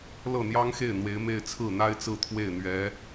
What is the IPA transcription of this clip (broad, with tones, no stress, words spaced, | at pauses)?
lɤ˥˩n̪jɑ˥ŋxe˥˩ɪ̯ n̪we˧˥ɪ̯me˥˧ɪ̯ t͡sʰɹ̩˥˩n̪a˥ɪ̯t͡sɹ̩˥˧ t̪ʰwe˥˩ɪ̯ n̪ɥɛ˧˥